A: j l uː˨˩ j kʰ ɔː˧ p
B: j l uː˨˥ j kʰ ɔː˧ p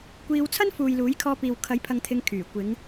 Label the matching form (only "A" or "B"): B